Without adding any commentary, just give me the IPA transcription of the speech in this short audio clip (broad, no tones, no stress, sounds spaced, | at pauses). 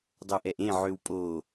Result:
dˤ o ʔ ɛ ʔ ẽ ʕ ø w pʼ o